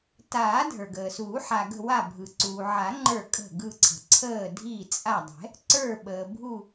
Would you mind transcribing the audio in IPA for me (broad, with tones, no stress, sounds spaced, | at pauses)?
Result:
t aː˨˩˦ dʱ ə˞˩ ɡ əː˩ s uː˨˩˦ ħ a˩ ɡ ə̤˧˩ w a˧˩ bʱ ɯ˩ ǀ uː˩ ʕ a˨˩˦ ŋ͡ǃ ə˞˧˩ kʼ ə̤˧˩ ɡ ɯ˧˩ ǀʰ ə̤˩ ǀʰ əː˧˩ dʱ iː˧˩ t͡sʼ a˧˩ dˤ ɛ̤˨˩˦ | ǀ ə˞˧˩ ɓ əː˩ bʱ u˧˩